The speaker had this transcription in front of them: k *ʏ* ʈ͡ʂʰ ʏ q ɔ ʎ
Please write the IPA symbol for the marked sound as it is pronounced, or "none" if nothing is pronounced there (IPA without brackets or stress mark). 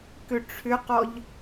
ʏ